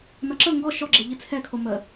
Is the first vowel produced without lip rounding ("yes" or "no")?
yes